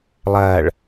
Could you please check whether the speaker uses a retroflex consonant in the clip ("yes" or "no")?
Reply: yes